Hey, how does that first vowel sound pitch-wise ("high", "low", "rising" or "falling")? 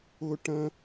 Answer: high